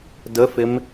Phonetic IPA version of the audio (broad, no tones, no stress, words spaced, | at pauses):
dəfɪm